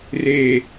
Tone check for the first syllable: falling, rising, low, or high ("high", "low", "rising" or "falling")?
low